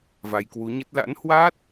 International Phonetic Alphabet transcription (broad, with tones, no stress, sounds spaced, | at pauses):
v a˧ j k w u˨˦ ɲ ə˦˥ t̚ l a̰˧˥ n h w a˦˥ t̚